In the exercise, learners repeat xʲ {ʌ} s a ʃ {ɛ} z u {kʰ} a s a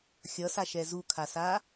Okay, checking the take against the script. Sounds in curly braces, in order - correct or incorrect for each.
correct, correct, correct

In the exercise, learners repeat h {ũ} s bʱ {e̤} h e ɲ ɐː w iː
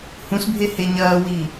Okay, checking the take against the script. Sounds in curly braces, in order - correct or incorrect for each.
correct, incorrect: e

